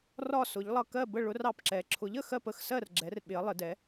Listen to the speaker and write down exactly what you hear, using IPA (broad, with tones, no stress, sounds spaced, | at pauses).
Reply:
r ɒ˥˧ s ʊ˧˥ ʎ lˠ ʌ˥˧ k ɜ˥˧ b ə˥˧ ɭ ʊ˧˥ r ɑ˥˧ p ǁ ɛ˧˥ ǁʰ ʊ˧˥ ʎ ə˥˧ x ɜ˥˧ p ə˥˧ x s ɜ˥˧ r ɡ͡ǁ ɛ˧˥ r ɓ ɪ˧˥ ɐ̯ lˠ ɪ˧˥ d ɛ˧˥